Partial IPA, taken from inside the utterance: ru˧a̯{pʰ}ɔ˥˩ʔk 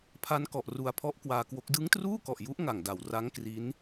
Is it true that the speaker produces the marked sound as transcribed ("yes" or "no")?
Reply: yes